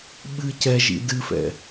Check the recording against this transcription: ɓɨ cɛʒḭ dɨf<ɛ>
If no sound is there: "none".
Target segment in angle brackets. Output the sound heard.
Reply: ɛ̰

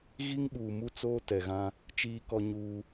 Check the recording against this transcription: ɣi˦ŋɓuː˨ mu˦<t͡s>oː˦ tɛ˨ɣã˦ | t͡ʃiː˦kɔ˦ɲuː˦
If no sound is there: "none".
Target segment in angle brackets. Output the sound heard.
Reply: t͡s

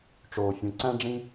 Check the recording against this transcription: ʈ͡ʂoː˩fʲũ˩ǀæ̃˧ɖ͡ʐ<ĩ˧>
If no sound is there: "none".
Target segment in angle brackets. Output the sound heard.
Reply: ĩ˧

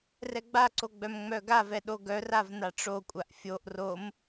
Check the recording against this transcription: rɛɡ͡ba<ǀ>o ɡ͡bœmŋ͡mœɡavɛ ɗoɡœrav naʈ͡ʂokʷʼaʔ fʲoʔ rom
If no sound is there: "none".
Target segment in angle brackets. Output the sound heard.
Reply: ǀ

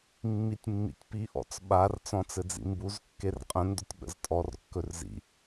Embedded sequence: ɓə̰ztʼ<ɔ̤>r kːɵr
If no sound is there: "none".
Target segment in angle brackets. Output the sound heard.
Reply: ɔ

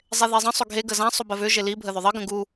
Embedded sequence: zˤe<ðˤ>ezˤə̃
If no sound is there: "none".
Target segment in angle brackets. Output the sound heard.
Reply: ð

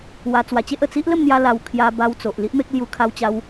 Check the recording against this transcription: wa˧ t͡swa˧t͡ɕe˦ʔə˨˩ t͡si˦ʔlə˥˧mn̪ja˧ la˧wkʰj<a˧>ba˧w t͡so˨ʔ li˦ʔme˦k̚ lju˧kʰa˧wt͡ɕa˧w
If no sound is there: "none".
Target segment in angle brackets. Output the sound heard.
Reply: a˧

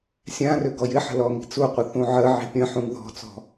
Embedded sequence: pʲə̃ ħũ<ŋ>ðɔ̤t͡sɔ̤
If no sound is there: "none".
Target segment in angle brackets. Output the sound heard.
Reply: ŋ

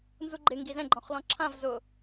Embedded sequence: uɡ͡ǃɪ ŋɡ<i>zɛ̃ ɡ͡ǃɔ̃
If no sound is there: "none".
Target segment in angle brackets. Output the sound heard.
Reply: i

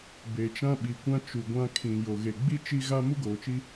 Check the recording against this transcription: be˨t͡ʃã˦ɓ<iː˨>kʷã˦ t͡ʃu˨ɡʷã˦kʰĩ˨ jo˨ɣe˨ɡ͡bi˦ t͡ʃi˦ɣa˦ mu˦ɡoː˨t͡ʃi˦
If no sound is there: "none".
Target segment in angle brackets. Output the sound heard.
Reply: i˨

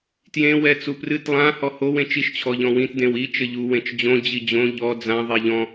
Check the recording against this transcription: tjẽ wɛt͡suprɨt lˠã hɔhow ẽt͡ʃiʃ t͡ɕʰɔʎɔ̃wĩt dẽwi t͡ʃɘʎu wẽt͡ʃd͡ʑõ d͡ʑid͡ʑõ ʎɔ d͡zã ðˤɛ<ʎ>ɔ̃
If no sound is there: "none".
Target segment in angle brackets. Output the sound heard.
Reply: ʎ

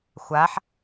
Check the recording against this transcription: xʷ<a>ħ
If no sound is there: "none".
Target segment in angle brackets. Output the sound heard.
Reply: a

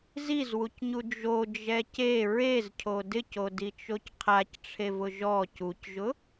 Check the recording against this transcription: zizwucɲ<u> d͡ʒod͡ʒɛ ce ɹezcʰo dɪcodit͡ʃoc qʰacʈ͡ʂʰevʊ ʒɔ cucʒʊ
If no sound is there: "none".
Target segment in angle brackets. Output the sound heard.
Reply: u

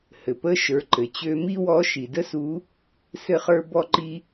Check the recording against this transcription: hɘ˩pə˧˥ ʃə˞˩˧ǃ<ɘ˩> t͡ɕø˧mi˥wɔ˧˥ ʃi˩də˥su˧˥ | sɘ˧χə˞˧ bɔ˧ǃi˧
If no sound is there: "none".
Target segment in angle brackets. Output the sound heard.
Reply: ɘ˩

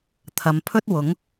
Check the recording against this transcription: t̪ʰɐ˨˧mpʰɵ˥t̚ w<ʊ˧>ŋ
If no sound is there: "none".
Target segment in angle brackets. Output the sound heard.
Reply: ʊ˨˥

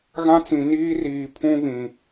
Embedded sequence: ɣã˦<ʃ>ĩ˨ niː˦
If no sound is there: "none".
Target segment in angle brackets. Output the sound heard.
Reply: t͡s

